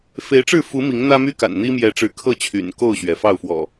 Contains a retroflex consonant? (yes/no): yes